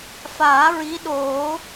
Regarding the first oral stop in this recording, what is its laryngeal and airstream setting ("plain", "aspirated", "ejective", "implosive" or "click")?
implosive